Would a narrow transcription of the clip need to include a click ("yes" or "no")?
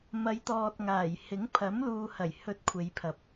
no